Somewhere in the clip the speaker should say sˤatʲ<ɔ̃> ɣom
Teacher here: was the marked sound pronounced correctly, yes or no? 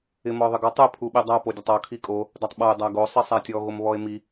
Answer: no